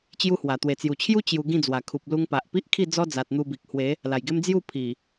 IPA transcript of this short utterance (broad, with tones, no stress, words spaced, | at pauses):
t͡ɕju˦hwa˨˩ t̪we˨˩t͡sju˨˩t͡ɕʰju˦ t͡ɕju˧ ɡĩ˥˧d͡zwa˨˩kʰu˨p̚ lu˧ŋpa˨ʔpi˦ʔkʰi˥˧ d͡zɔ˦d͡za˨t̚ n̪u˧bi˨k̚hwe˨˦ | la˨˩jɡe˦m d͡zju˥˧ pʰi˨˩